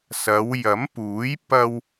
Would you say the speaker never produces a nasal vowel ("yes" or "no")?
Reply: yes